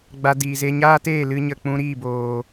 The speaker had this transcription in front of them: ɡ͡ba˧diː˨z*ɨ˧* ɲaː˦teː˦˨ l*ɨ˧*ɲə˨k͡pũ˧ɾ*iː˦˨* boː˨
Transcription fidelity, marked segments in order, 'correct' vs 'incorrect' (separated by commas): incorrect, correct, correct